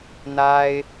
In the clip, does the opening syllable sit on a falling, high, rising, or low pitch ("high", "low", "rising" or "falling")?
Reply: high